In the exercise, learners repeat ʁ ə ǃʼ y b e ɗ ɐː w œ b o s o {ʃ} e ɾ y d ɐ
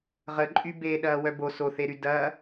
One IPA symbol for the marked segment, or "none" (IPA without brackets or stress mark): θ